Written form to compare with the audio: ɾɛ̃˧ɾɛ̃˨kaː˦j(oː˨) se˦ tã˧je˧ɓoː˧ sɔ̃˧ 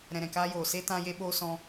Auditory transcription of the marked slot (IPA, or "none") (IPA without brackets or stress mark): oː˨